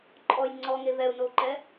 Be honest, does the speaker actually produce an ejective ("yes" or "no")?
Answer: yes